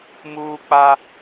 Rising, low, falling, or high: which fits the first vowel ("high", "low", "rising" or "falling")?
high